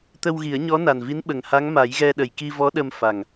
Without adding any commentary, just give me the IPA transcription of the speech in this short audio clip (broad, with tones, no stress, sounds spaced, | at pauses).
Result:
t̪ ə˧ w ɣ i˨˩˦ ə̯ ɲ ɔ˧˥ n a˨˩ n v i˧˥ n ɓ ə˨˩ ŋ h a˧˥ ŋ m a˨˩˦ j ɣ ɛ˧ ɗ ə˨˩ j k i˧ v ɔ˧˥ ɗ ə˧ m f a˨˩ ŋ